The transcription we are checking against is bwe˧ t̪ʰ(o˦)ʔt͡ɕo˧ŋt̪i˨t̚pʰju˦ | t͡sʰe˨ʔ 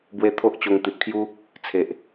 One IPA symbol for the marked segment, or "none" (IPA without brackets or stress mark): o˦